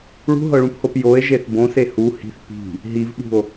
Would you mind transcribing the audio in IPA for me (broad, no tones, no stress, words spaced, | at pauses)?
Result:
ɭṳɦɤɭũphop joe̯ʒeθ bõse hu hi̤θ pi̤ | ɦivɓṳo̯